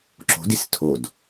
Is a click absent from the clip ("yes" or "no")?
no